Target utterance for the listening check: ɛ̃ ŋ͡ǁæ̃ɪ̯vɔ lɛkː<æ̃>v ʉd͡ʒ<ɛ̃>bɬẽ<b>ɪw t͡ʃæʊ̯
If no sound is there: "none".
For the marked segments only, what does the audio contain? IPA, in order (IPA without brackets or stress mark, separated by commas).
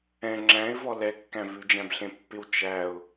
æ̃, æ̃, pː